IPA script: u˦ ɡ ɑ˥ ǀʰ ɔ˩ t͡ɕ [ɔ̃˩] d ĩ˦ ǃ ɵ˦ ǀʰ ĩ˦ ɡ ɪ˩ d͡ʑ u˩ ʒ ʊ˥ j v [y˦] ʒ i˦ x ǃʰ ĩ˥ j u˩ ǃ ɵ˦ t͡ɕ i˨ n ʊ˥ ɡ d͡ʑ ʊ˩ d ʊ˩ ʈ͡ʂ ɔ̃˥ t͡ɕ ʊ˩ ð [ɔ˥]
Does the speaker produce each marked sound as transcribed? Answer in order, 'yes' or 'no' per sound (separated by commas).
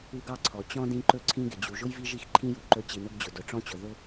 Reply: no, no, no